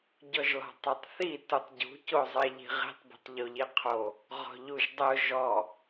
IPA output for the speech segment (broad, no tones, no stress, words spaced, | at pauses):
ɟɔʒlɔ̤tˤotˤθi tutˤɟṳ cozˤeʎi̤ʁi̤tˤ bi̤tˤʎoʎiqʰo | ʁɔ̤ʎuʒdˤʊ ʒɔ